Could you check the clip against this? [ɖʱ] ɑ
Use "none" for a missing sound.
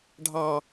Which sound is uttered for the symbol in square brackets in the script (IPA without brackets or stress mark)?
ɖʱ